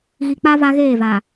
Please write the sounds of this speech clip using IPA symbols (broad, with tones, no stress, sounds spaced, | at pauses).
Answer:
ɣ i˨ k͡p a˦ v a˦ ɣ eː˦˨ v a˨